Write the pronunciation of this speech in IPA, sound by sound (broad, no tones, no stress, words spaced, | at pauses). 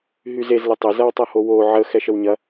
ɦyzez lɘtˤɘ zɐwtˤɐhowo ʕə xɛʃəwɲɐ